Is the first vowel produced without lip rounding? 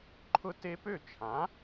no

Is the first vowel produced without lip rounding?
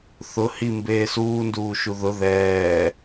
no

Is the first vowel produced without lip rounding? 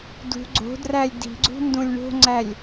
no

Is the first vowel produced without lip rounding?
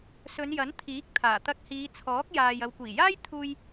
no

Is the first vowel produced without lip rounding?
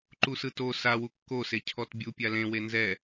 no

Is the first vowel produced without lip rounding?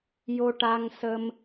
no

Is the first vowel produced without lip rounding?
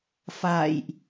yes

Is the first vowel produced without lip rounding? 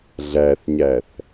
yes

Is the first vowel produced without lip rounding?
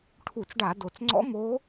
no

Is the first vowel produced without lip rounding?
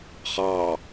yes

